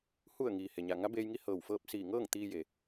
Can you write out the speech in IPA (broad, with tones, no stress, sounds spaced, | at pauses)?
h u˧˩ ə̯ ŋ iː˩ h e˩ ɲ a˧˩ ŋ a˧˥ b eː˧ j ŋ i˧˥ h ɤː˧˩ w f ɤː˥˨ p̚ s iː˧˩ ŋ ɤː˥˨ ŋ t̪ iː˧ j e˩